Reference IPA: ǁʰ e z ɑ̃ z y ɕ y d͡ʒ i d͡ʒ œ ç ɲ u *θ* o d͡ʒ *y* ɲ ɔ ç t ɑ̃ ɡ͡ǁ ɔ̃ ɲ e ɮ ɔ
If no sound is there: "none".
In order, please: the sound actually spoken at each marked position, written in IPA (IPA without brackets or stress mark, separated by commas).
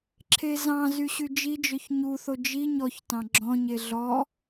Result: θ, i